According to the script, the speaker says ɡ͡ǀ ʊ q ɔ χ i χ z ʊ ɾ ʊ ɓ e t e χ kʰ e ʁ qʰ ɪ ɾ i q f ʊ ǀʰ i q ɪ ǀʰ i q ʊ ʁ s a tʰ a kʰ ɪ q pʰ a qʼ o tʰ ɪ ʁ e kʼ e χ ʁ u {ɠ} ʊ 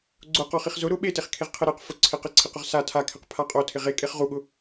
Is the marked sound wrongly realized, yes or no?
no